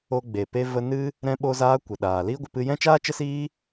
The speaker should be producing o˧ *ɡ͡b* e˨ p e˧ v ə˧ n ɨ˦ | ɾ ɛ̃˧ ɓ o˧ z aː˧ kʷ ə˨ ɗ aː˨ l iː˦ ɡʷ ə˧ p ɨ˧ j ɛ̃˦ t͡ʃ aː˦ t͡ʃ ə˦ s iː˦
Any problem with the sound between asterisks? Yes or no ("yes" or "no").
no